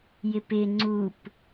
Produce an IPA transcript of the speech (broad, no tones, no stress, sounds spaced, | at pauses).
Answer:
j ɪ p ɪ ŋ͡ǀ u p